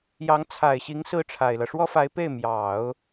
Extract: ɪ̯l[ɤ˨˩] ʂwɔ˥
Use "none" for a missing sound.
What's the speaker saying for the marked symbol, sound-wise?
ɤ˦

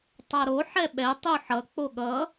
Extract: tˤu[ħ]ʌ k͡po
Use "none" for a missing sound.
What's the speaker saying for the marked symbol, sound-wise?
ħ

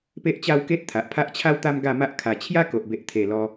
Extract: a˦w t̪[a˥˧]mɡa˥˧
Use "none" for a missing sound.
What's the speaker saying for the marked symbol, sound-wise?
a˦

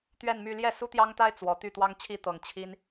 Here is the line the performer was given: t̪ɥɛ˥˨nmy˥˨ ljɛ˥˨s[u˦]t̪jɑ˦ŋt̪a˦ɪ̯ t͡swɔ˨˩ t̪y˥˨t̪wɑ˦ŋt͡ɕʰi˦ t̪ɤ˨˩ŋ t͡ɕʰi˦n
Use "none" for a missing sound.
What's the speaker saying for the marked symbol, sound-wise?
u˦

